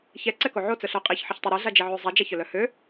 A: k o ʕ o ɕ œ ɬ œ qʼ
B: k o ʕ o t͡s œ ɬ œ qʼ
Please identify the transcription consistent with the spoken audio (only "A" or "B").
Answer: B